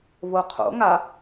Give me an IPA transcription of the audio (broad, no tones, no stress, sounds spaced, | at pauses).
v o qʰ o̰ ŋ a